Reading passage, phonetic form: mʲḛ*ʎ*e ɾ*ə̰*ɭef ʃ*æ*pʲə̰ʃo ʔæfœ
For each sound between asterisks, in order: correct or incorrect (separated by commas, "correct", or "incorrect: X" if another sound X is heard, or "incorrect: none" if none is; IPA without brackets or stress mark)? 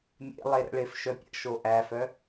incorrect: lˠ, correct, incorrect: œ